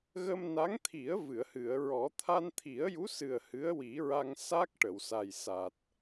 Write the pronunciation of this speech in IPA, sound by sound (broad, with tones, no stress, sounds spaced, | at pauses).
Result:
ɣ ə˧ m n a˧˥ ŋ t̪ʰ i˨˩˦ ə̯ v ɨ˨˩˨ ə̯ h ɨ˨˩˨ ə̯ ɹ ɔ˨˩˦ t̪ʰ a˧ n t̪ʰ i˨˩˦ ə̯ j u˧˥ s ɨ˨˩ ə̯ h ɨ˧˥ ə̯ w i˨˩˦ ɹ a˧ ŋ s a˦˥ k̚ ʈ ə˨˩˨ w s a˨˩ j s a˨˩ t̚